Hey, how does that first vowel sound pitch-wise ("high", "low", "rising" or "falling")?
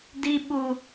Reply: high